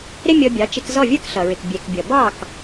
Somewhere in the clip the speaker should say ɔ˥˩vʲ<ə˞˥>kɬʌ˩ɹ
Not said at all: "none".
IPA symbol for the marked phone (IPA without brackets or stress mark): ə˞˥